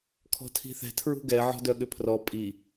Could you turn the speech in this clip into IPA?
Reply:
kʰ ɔ̤ tʰ i̤ θ ɛ̤ tʰ ɹ ṳ ɡ ɛ ʕ ɔ̤ d œ ɠ ʏ pʰ r ɔ pʼ i

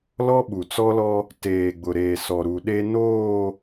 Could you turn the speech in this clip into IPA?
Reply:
l ɔ˦ ɓ u˨ t͡s ɔ˦ l ɔ˦ | t eː˨ ɡ͡b ʊ˨ ɾ eː˨ s ɔ˨ ɾ u˨ ɗ e˦ n oː˦˨

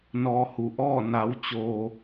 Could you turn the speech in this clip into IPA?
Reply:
n ɔː˧ h u˩ ʔ ɔː˥˨ n a˩˧ w t͡ɕ oː˩

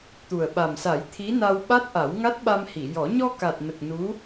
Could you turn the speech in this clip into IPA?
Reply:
t̪ u˨˩ ə̯ ɓ a˨˩ m s a˨˩˦ j t̪ʰ i˧˥ n a˧ w ɓ a˦˥ t̚ ʔ a˨˩˦ w ŋ a˦˥ t̚ ɓ a˧ m h i˨˩˨ j ɔ˨˩˦ ɲ ɔ˧ k a˨˩ t̚ n ə˨˩ k̚ n u˧˥

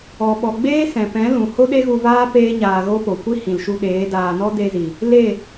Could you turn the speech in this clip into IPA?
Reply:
ɔ˨ ɓ ɔ˨ ɡ͡b eː˦ s ɛ̃˨ p ɛ̃˨˦ l ũ˨ h o˦ ɗ e˦ ɣ u˧ v aː˦ p eː˦ ɲ aː˧ ɣ o˦ p o˨ kʷ i˦ h ĩ˨ l ʃ u˧ ɗ eː˨˦ d aː˧ n ɔ˦ d e˧ z i˨ | l e˦˨

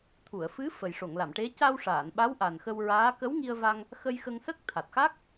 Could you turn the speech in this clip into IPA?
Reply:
t̪ʰ u˨˩˨ ə̯ f ɨ˧˥ f ə˨˩ j ʂ o˨˩˨ ŋ l a˨˩˨ m ʈ e˧˥ c a˧ w ʂ aː˨˩˨ n ɓ a˧˥ w ʔ a˨˩ n x ə˧ w ɹ aː˧˥ k ə˧˥ w ŋ i˧ ə̯ v a˧ ŋ | x ə˧ j x ə˧ ŋ s ə˦˥ k̚ t̪ʰ a˨˩ t̚ x a˦˥ k̚

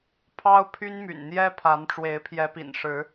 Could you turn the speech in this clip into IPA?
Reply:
pʰ ɑ˦ ʊ̯ pʰ y˦ n m y̰˨˩ n n̪ j ɛ˦ pʰ a˨˦ n ʈ͡ʂ w e˨˦ ɪ̯ pʰ j ɛ˨˦ p ḭ˨˩ n ʂ ɻ̩˨˦

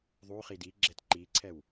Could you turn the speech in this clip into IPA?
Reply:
ðˤ u χ i d i ɡ͡ǁ ɛ t ǃ i ǀʰ ɛ w

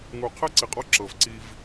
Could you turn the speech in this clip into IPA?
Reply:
ŋ u˨ qʰ ɛ˥ ǀ i˨ qʼ ɔ˦ ǁ ɤ˩ v ǀ i˨ v

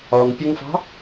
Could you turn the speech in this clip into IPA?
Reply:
ɒ ŋ pʲ ʌ ŋ f ɑ̤

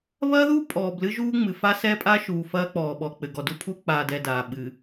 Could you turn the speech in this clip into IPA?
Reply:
β ɐː˦ ð u˦ pʼ ɔː˨ b l ɨ˦ ʒ uː˦ ŋ͡m ɨ˨ f a˦ s ɛ˦ pʼ a˦ ʃ uː˨ f ɐː˦ k͡p ɔː˨ ɓ ɔ˨ k͡p ɘ˨ ɡ ɔ˨ d u˦ pʰ u˦ k͡p aː˨ d ɛ˨ d aː˨ ɓ ɨ˨

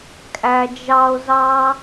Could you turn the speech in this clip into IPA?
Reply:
kʼ æ˥ d͡ʒ ɑ˥ o̯ z ɑ˥

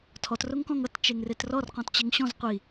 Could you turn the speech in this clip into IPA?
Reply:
tʰ ɔ t r o ŋ k ɔ̃ ŋ ʌ t t͡ʃ e ŋ r e t r ɔ r q ɔ̃ t t͡ɕ e ŋ ɕ ɔ̃ z qʷ i

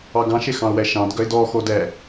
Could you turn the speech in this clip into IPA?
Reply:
ɑ ɡ ɑ̃ ʃ e x ɑ̃ ʊ̯ w ɛ ʃ ɑ̃ d ɡ œ ɪ̯ d ɔ x o d ɛ

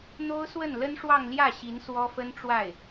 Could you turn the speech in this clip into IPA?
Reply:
n̪ o˥ ʊ̯ s w ə˥˩ n l ə˥ n ʂ w ɑ˥˧ ŋ l j ä˥˩ ɕ i˧˥ n s w ɔ˥ f ə˥ n ʈ͡ʂ w a˥˩ ɪ̯

